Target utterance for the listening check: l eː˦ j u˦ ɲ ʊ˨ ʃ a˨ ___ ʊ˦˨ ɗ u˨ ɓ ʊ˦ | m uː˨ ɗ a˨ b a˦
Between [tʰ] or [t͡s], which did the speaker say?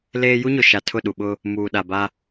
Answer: tʰ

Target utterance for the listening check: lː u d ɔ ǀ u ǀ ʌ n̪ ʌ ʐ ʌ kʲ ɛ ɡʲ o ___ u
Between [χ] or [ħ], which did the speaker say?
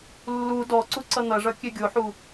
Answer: ħ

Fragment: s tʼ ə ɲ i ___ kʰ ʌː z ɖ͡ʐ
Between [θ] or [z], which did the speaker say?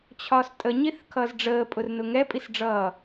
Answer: θ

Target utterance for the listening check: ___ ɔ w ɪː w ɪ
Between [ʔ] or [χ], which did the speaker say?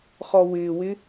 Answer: χ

